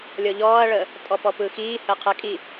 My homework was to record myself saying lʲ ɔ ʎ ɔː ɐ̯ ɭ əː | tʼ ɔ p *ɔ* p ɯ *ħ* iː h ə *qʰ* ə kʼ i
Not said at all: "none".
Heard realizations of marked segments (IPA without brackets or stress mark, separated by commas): ɔ, x, qʰ